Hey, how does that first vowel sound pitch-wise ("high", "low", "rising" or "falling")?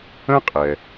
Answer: high